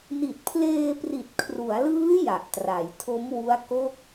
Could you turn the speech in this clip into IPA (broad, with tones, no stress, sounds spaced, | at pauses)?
n i˨˩ t̚ pʰ l eː˧ p r i˨˩ t̚ kʰ r u˩˦ a̯ l ɯː˦˥ j a˨˩ ʔ t r a˩˦ j tʰ o˦˥ m w u˦˥ a̯ k o˥˩ k̚